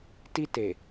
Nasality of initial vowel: oral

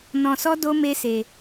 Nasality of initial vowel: nasal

